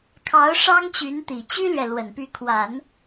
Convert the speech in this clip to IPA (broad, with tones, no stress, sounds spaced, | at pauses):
kʰ ɑ˧˥ ʊ̯ ʂ ɑ˥ ŋ t͡ɕ y˧˥ n t̪ i˨˩ t͡ɕ y˥ l ɥ ɛ˨ l w ə˨˩ n p y˧˥ kʰ w a˨˩˦ n